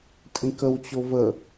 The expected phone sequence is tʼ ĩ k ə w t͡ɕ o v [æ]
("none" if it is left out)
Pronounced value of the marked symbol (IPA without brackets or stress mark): ə